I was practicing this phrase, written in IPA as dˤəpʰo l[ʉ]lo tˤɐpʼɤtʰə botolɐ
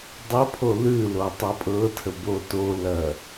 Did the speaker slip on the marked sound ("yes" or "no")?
no